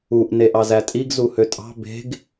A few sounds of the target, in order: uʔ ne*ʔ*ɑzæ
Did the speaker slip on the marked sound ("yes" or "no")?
no